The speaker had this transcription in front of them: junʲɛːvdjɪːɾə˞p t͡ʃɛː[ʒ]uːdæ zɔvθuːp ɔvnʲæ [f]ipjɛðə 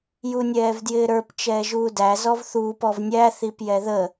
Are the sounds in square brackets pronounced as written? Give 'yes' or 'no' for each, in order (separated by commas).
yes, no